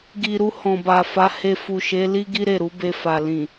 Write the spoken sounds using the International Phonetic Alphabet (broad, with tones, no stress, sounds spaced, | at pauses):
ɡ i˨ ɾ u˧ h ɔ̃˨ b a˨ f a˨˦ h e˧ f u˨ ʃ e˨˦ l i˦ ɡ i˦ ɾ e˦˨ ɾ u˨˦ b e˧ f a˨ l ĩ˨